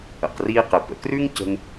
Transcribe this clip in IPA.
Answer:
ə̰˩ q r iː˧ q ɘ˩ p ə̰˩ k r ʉ˥ ŋ c ə̤˧ ŋ

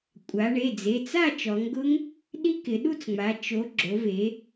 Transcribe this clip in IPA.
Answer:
kʷʼ a˩˧ ɳ e˩˧˩ d͡z e˩˧˩ t͡s a˥˨ t͡ʃ ɔ˩˧ ŋ ɡ ʊ˦˥ ŋ | ɗ i˦˥ k ɪ˩˧ ɗ u˥˨ t͡s ŋ͡m a˩˧ t͡ʃ o˩˧ ɡ͡ǁ o˩˧ v e˩˧

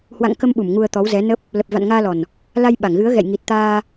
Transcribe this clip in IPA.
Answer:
h w a̰˧˨ ŋ k ə˧ m ɓ u˧˩ m ŋ u˧ ə̯ t̪ ɔ˨˦ w z ɛ˨˦ n ə˦˥ p̚ | l ə˨˩ p̚ v a̰˧˨ n ŋ aː˧ l ɔ˨˩ n | l a˧ j ɓ a˧˩ ŋ ɣ ɨ˨˦ ə̯ ɣ ɛ̰˧˨ j ŋ i˨˩ t̚ t̪ aː˧

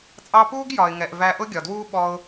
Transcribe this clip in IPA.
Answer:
t͡sʼ ɑ˧ p uː˦ ɡ j ɒ˨ ɪ̯ ŋ ɛ˨ ʔ v æ˧ ʔ ʊ˦ ɡʲ ɒ˨ d w uː˦ ɓ ɔ˧ ʊ̯

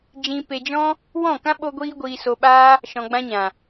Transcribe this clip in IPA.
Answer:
d͡ʒ ĩ˧ p e˧ d͡ʒ ɔ̃˦ | w ɔ̃˦˨ k ã˦ ɓ o˦ ɡʷ iː˦ ɡʷ iː˧ s o˧ ɓ aː˦ | ʃ ɔ̃˧ ɡ͡b ã˧ ɲ ã˨

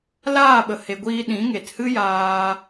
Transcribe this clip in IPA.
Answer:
l aː˦˨ ɓ ə˨ h e˨ ɡʷ iː˧ ɗ ĩ˨˦ ŋ e˨ t h ɨ˦ j aː˧

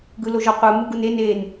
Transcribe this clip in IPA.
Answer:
ɡ ɯ l o ʒ ɔ qʷ ɯ m u ɡ u n e n e n

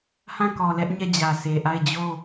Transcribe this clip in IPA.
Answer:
h ã˦˨ k ɔ˨ l ɛ˦ ʔ ɲ ɛ˦˨ d͡ʑ ä˨ sʰ e˨ ʔ a˦˨ ɪ̯ d͡ʑ o˦˨

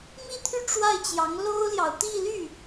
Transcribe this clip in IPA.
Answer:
m i˥˧ t̪ʰ y˥˧ ʈ͡ʂ w a˥˩ ɪ̯ t͡ɕ j ɑ˧˥ ŋ l o˥ ʊ̯ l j ɑ˨ ʊ̯ t̪ i˥˧ l y˥˩

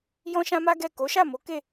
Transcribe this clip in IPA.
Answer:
j ɔ̃˦ ʃ ã˦ m a˦ ɡ ɛ˦˨ k o˨˦ ʃ a˦˨ m o˨˦ k e˦˨

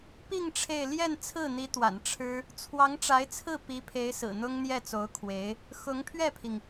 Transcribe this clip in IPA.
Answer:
p i˥˧ ŋ ʈ͡ʂʰ e˥˧ ɪ̯ l j ɛ˥˧ n t͡sʰ ɹ̩˥˩ n̪ i˧˥ t̪ w a̰˨˩ n ʈ͡ʂʰ ɻ̩˥ | t͡sʰ w ɑ˧˥ ŋ ʈ͡ʂ a˧˥ ɪ̯ t͡sʰ ɹ̩˥˩ p i˧˥ pʰ e˧˥ ɪ̯ s ɹ̩˨˩ n̪ ʊ˥ ŋ n̪ j ɛ˥˩ t͡s o˧˥ ʊ̯ kʰ w e˧˥ ɪ̯ | x ʊ˧˥ ŋ pʰ ɥ ɛ˥˩ pʰ i˩ ŋ

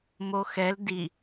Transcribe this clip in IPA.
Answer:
m o x ɛ l d i

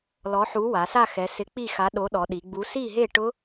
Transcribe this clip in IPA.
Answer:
l ɔ˨˥ ħ u˨˥ w a˩˧ s a˥˨ x ɛ˩˧ s ɪ˨˥ k͡p i˥˨ x a˨˥ ɗ o˨˥ ɗ ɔ˩˧ ɗ i˩˧ ɡ͡b u˨˥ s i˥˨ ɦ e˥˨ ʈ ʊ˦˥

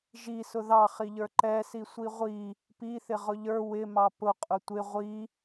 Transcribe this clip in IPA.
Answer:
ʒ i s ʊ ð ɑ χ i ʎ ə˞ ǃ ɛ s i sʷ i ʁʷ i | p i θ ɪ ʁ ʊ ʎ ə˞ w ɪ m ɑ p ʊ qʼ ʊ tʷ ɪ ʁʷ i

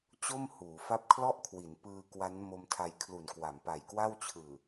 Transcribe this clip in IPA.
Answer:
t͡ɕ o˥˩ m h uː˩˦ f a˥˩ p̚ kʰ l ɔ˥˩ ʔ kʰ w i˩˦ n p ɯː˧ k w a˦˥ n m o˧ m tʰ a˧ j kʰ l u˨˩ n k w a˩˦ m p a˨˩ j k w a˥˩ w t͡ɕʰ ɯː˨˩

